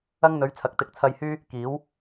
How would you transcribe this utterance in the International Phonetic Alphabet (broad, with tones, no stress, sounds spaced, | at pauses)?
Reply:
ɐ˧ ŋ n̪ ɵ˨˧ ɥ t͡sʰ ɐ˨˥ k̚ t̪ ɪ˨˥ k̚ t͡sʰ ɐ˧ j h yː˥ | k iː˨˧ w